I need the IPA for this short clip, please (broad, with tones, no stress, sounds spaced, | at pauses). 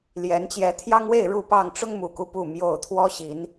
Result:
l j ɛ˨˦ n t͡ɕ j ɛ˨˦ t̪ʰ j ɑ˦ ŋ w e˥˨ ɪ̯ ɻ u˥˨ p ɑ˥˨ ŋ ʈ͡ʂ ʊ˦ ŋ m u˨˩ k u˦ p u˥˨ m j o˥˨ ʊ̯ t̪ʰ w ɔ˦ ɕ i˨˦ n